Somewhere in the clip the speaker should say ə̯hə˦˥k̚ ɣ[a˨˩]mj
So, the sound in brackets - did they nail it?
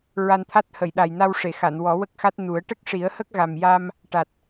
yes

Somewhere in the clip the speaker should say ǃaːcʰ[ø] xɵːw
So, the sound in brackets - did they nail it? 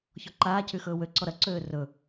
no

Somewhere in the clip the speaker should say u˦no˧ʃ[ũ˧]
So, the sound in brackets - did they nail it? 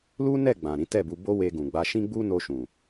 no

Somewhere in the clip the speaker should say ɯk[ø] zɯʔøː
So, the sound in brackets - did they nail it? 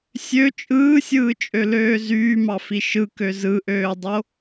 yes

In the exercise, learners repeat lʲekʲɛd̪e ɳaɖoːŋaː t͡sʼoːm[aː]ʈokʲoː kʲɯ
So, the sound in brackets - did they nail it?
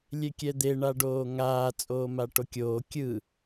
no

